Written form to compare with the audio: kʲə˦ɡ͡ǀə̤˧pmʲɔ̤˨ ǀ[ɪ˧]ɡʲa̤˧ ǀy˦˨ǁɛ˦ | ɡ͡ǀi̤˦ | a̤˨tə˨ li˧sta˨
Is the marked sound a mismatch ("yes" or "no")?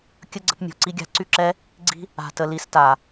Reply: yes